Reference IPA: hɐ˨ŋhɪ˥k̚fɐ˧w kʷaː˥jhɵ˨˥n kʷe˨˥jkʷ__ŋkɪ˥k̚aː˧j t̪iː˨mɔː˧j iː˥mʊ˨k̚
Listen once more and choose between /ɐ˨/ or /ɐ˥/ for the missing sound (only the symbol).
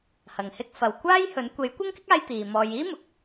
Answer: ɐ˥